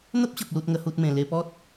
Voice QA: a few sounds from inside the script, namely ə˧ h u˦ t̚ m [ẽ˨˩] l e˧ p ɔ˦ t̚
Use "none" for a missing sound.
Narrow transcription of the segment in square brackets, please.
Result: ẽ˨˩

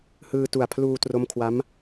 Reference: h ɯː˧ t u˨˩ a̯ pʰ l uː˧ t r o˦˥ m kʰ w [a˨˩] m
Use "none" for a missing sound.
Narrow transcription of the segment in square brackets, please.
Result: a˦˥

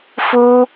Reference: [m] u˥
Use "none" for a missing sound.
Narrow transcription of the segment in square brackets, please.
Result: f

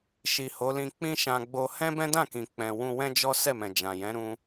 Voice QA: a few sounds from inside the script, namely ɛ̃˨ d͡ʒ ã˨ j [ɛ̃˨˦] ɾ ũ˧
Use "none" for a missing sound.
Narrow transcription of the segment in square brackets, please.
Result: ɛ̃˨˦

